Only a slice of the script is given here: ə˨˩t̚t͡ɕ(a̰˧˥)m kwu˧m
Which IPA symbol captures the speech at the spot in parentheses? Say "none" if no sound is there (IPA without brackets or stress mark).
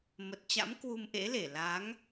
a̰˧˥